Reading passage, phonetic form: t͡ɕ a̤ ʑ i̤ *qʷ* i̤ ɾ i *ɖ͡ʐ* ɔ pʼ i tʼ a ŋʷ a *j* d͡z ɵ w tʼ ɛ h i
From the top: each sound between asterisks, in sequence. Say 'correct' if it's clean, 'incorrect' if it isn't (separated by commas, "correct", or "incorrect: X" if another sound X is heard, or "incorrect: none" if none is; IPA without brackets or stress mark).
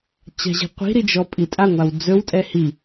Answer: correct, incorrect: d͡ʒ, incorrect: w